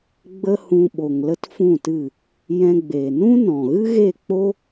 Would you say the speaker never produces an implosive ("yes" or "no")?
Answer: no